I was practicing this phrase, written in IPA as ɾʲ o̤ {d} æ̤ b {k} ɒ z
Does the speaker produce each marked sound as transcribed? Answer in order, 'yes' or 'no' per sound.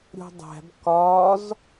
no, yes

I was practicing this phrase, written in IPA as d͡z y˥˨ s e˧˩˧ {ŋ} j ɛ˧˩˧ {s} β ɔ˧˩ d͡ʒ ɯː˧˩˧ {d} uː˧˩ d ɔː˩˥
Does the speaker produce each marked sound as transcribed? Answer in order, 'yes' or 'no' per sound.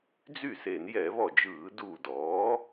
no, no, yes

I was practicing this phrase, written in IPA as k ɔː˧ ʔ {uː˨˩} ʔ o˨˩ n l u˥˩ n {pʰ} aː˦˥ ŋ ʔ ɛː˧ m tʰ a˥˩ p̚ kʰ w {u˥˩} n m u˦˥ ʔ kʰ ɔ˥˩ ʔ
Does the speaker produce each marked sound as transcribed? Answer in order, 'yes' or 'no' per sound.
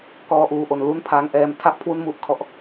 yes, yes, yes

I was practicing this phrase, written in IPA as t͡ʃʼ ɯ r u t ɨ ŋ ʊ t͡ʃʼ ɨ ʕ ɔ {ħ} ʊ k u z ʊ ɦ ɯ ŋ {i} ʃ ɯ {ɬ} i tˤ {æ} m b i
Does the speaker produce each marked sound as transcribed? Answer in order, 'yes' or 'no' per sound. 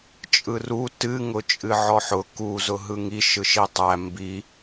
yes, yes, no, yes

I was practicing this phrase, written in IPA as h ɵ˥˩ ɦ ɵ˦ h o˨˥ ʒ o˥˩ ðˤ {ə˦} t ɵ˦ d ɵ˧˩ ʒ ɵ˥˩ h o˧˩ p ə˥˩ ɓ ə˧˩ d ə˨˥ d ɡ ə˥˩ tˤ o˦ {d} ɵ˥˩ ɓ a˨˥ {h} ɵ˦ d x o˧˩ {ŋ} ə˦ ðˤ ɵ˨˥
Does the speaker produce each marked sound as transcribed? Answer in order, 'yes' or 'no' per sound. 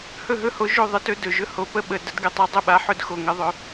yes, no, no, yes

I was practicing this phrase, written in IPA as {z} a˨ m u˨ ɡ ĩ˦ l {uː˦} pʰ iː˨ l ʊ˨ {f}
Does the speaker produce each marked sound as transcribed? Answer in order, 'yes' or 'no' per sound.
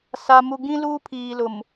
no, yes, no

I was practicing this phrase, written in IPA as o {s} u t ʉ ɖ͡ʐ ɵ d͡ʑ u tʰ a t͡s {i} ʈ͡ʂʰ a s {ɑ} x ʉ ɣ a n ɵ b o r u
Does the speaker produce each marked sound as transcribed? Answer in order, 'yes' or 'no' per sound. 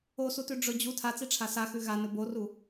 yes, yes, no

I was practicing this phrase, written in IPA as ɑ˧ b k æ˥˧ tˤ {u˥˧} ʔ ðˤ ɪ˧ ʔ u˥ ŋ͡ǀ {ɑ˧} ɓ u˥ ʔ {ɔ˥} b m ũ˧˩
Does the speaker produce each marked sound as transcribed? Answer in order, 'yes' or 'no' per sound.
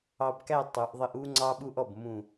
no, no, no

